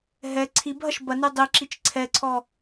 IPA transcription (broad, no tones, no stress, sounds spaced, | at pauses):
ɦ ɛ ǀʰ i b ɦ ɐ ʃ b ɐ n y dˤ i ǁ i t͡ʃ ǀʰ ɛ ǀʰ ɔ